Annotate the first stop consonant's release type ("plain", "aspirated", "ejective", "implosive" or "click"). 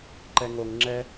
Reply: click